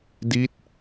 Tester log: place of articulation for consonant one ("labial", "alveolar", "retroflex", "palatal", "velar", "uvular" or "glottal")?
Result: alveolar